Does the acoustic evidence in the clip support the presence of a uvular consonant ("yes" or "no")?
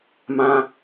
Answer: no